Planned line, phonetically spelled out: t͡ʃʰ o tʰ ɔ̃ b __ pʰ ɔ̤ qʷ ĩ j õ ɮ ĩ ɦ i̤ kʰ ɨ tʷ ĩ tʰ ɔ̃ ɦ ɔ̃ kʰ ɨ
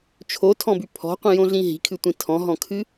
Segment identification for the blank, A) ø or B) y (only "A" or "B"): B